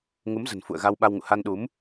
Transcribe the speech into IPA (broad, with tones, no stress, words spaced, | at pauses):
ŋu˨˦mzə̤˨˩nfṵ˧˨ə̯ ɣa˧wɓa˧wŋṵ˧˨ ha˧nɗu˨˦m